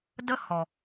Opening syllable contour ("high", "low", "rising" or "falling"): high